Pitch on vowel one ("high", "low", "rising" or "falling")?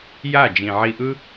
falling